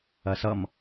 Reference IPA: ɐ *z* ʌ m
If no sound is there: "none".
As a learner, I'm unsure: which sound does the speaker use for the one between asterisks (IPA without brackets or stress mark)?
s